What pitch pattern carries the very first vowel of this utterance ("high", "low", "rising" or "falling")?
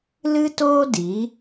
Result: high